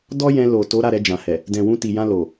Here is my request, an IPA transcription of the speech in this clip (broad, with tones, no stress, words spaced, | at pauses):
dɔ˦jɛ̃˧ lo˨to˨˦ ɾa˦˨ɾɛ˧d͡ʒã˨hɛ˨ | dɛ̃˨wũ˧ti˨ jã˧lo˨